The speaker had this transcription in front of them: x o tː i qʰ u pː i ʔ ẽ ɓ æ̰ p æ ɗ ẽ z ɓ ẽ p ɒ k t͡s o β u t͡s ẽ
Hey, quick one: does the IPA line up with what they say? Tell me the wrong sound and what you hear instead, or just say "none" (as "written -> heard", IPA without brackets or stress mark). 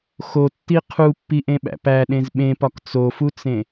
β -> f